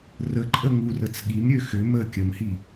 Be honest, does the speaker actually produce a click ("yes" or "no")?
yes